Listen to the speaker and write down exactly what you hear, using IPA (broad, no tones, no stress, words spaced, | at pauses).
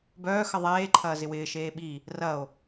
bœːxə ðˤeːǃʰɐː zɪwɪːʃeː ɓi | rɐo̯